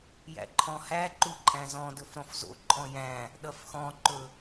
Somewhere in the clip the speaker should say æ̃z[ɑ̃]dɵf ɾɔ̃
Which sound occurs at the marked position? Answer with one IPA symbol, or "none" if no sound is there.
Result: ɔ̃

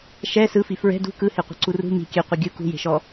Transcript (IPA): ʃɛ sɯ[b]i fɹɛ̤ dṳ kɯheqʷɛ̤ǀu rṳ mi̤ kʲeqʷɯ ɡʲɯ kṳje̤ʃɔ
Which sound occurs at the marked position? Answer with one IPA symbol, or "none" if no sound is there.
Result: f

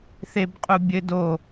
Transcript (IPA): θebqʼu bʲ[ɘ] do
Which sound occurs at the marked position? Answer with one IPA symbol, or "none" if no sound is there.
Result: ɘ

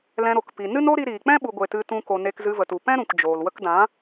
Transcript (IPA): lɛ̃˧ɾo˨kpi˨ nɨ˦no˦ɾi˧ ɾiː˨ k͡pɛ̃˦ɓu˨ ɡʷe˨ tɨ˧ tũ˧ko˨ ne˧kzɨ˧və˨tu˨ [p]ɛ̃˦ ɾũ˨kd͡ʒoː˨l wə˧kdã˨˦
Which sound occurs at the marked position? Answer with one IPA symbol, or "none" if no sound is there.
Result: p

